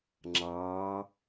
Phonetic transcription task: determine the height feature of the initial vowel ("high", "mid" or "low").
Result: low